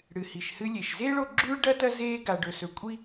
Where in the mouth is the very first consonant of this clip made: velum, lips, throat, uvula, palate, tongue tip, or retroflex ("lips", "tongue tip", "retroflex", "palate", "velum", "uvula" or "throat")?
retroflex